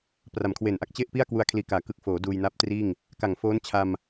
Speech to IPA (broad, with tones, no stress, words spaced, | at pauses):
pra˨˩mkʰwe˨˩nʔa˥˩k̚t͡ɕe˥˩ʔ pi˥˩a̯kwu˧a̯kʰliː˨˩kaː˩˦ kɯ˨˩k̚foː˩˦ duː˧jna˦˥p̚triː˥˩ŋ | ka˨˩ŋfoː˦˥nt͡ɕʰa˧m